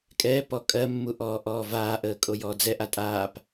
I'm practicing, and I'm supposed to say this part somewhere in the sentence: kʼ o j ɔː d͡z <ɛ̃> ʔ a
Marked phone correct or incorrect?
incorrect